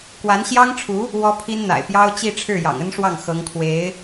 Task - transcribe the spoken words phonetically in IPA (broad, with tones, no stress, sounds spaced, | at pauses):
k w a˧˥ n ɕ j ɑ˥ ŋ ʈ͡ʂʰ u˧˥ | w ɔ˥ pʰ i˥ n n̪ a̰˨˩ ɪ̯ p j ɑ˥ ʊ̯ t͡ɕ i˥˧ ʈ͡ʂʰ ɻ̩˥˩ j ɑ̰˨˩ ŋ ə˥ n ʂ w ɑ˥˩ ŋ x ɤ˧˥ ŋ kʰ w e˧˥ ɪ̯